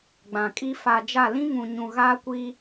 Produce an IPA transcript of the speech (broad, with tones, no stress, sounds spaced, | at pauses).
ɡ͡b ã˨ kʼ i˦ f a˨ d͡ʒ a˦˨ l ĩ˦ ŋ ũ˨ ɲ ũ˨ ɣ aː˦ kʷ i˦